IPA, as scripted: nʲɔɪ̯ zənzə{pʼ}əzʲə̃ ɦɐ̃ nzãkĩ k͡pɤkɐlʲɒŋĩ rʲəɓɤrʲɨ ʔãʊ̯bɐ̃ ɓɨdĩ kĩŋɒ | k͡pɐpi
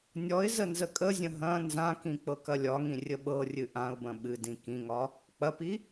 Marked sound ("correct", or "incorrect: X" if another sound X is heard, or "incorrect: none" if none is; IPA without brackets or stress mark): incorrect: kʼ